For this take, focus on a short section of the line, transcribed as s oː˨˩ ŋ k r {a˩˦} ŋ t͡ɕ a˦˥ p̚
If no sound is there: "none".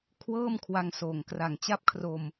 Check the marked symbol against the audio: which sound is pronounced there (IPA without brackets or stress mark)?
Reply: a˨˩